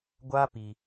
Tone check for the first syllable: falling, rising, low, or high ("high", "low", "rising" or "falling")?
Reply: high